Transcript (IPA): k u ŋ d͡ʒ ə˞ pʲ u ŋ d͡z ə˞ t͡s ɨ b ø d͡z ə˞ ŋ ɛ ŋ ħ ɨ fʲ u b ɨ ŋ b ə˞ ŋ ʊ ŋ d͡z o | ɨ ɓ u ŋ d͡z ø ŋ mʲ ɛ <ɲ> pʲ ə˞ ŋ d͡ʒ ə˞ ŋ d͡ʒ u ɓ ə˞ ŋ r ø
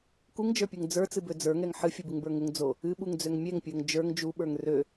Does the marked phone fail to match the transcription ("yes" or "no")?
yes